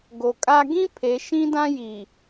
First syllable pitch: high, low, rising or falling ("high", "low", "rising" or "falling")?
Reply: low